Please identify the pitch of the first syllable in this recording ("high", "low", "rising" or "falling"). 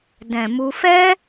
low